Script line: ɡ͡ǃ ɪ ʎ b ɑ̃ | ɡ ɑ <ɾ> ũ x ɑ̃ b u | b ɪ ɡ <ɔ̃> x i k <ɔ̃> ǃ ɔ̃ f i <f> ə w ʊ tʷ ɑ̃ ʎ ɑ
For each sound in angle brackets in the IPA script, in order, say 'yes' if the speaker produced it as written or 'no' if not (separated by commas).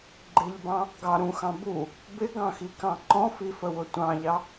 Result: yes, no, no, yes